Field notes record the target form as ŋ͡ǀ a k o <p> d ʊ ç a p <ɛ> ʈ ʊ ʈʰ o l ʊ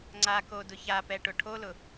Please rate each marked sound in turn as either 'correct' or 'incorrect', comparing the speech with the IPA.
incorrect: none, correct

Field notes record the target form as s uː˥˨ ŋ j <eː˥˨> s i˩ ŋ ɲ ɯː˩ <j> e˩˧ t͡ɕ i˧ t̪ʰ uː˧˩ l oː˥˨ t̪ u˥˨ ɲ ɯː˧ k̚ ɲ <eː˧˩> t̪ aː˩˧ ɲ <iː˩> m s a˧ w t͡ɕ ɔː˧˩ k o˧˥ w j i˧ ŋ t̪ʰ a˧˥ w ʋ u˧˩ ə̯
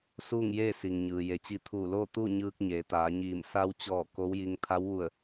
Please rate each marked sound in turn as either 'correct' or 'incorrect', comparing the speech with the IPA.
correct, correct, incorrect: eː˩˧, incorrect: iː˧˩

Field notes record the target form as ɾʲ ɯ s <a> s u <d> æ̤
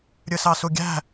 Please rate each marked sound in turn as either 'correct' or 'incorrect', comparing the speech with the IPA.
incorrect: ɑ, incorrect: ɡʲ

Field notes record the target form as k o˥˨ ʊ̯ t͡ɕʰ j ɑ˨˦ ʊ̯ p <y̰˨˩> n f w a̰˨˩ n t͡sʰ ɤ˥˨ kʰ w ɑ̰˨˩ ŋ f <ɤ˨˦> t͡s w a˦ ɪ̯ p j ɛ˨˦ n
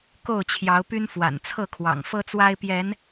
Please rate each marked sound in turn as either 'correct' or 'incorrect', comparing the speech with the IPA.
incorrect: y˦, incorrect: ɤ˦

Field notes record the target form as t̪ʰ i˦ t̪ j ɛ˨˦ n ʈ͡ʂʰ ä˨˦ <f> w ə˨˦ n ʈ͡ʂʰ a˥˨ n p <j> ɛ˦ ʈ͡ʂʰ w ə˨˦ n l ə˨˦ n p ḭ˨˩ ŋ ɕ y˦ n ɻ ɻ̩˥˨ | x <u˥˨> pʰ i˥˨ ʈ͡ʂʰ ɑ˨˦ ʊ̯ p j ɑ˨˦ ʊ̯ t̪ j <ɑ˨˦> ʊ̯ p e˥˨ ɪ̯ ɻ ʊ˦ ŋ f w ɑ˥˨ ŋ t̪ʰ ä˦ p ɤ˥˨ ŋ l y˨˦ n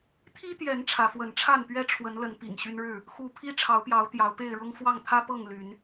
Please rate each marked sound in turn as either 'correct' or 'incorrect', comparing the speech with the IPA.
correct, incorrect: ɥ, correct, correct

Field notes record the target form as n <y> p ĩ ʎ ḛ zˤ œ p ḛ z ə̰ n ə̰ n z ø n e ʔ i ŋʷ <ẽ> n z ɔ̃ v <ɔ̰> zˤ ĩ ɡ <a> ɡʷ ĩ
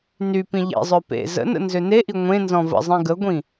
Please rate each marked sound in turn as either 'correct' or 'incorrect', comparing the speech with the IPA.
correct, correct, incorrect: ə̰, incorrect: ə

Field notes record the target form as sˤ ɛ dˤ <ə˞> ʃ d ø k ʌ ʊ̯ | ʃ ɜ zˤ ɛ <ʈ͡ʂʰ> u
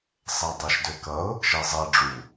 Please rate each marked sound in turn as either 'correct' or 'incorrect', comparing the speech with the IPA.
incorrect: ʌ, incorrect: ɖ͡ʐ

